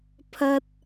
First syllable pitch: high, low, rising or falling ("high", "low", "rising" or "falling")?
high